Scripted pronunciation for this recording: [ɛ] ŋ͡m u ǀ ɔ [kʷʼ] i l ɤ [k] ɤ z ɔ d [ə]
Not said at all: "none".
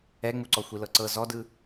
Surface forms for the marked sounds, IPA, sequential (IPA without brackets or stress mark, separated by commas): ɛ, xʷ, ǀ, ɯ